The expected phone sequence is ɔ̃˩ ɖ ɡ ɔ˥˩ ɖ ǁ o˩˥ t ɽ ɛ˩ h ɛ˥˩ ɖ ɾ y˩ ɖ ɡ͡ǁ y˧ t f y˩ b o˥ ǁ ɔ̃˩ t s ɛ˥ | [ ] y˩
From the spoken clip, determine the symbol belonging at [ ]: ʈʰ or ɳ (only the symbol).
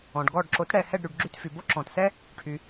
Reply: ʈʰ